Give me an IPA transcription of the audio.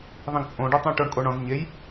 ðˤĩɡt͡sʼõɖetˤĩ ʈoɳkʼoɳɔ̃z ɲej

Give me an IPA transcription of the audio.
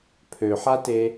pʰøħate

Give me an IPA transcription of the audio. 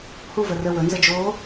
huvə rə wɵnzə d͡ʒo

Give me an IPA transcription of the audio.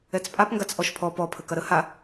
ɛt͡spʼapŋɡat͡s ʔɔʃpʰɔ pɔpʰə kɐɾə ha

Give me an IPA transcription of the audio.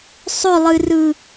sˤɵlˠɨrɯ

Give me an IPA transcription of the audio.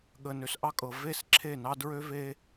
ɠə˨nø˨sʔɑ˦kʼɤ˨ ve˦˨sǁʰe˦˨nɑ˦ dɹø˦ve˦

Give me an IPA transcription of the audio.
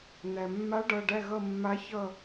n̪æ˩mːa˧˥ɖʌ˩˧˩ɖæ˦˨ ɣʌ˦˨mːa˧˥çʌ˦˨

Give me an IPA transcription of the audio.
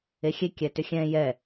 exʲe kʲɛtʏxʲɛ̃ jɛ

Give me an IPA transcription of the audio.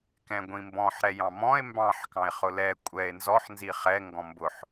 kɛ̃ɡʷĩmbɔ̃ħ ɾɛjɑ̃mɔ̃e̯ mbɑ̃ħ kɑ̃e̯χʊlɛ kʷʼɛe̯ nzɔħ nziχɛ ŋɡɔ̃mbʊħ

